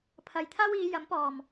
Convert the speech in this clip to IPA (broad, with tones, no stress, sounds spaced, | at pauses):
pʰ ɐ˨ j t̪ʰ aː˥ w iː˨˧ j ɐ˨˥ m p ɔː˨˩ m